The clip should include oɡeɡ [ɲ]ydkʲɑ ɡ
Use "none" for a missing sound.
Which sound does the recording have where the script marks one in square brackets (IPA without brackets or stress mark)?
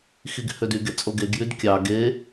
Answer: j